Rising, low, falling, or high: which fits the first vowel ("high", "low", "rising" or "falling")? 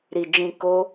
low